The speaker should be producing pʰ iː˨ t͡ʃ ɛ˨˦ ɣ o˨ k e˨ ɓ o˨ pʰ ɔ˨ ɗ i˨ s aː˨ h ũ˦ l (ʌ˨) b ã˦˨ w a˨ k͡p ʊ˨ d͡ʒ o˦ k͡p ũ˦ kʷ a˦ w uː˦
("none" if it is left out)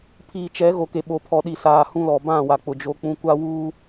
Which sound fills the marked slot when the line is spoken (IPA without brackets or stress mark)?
ɔ˨